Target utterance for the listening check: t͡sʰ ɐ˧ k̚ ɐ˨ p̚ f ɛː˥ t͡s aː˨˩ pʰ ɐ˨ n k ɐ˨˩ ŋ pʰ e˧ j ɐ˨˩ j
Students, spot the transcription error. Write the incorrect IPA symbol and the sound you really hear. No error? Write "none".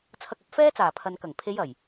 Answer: e˧ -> e˨˧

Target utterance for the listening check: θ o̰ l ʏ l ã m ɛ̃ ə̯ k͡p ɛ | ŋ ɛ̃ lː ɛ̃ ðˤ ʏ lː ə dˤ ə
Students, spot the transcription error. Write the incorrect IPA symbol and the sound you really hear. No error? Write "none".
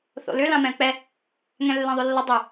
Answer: none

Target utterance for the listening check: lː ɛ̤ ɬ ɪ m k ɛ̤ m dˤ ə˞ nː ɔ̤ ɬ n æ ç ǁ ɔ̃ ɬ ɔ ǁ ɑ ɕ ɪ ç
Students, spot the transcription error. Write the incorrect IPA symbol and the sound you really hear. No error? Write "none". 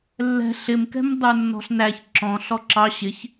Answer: none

